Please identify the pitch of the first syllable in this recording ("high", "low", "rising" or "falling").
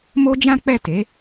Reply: high